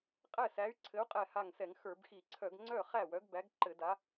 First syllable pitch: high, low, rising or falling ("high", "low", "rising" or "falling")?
falling